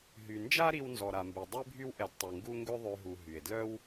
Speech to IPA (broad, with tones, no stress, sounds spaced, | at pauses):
ɦ y˩ n d͡ʒ a˦ ɾ i˦ w n z ɔ˩ ɾ a˩ m b e˩ dˤ i˦ bʱ y˦ w ʔ ɛ˨ d tˤ y˩ ŋ ɡ u˦ ŋ ɡ ø˦ ðˤ ø˨ ɦ u˩ ɦ y˩ e̯ d l œ˥ w